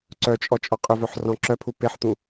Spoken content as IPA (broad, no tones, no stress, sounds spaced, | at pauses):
ǀ œ t͡ʃʼ ɔ t͡ʃʼ ɔ qʼ ʏ v œ ħ r ɔ̃ ǁ œ pʰ u p e ħ t̪ ũ